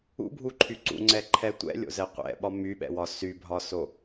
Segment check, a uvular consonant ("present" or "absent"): present